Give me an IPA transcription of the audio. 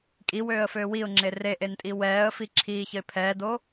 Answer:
kʼ i w øː ə̯ f øː w i ʊ̯ ŋ͡ǁ e r e ʔ e n tʼ i w ɛː ə̯ f i ǁʰ iː ç ə ɪ̯ pʰ ɛː d o

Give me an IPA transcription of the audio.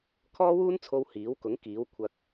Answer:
kʰ ɔː˥ w uː˥ n t͡sʰ o˧ w h iː˨˥ w k ʊ˨˥ ŋ k iː˨˥ w kʷʰ ɐ˧ k̚

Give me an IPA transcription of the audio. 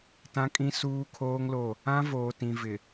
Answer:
t ã˦ kʼ ĩ˦ s uː˦ kʰ oː˦ ŋ l o˦˨ | ã˦ v oː˨ t ĩ˨ v ɪ˨

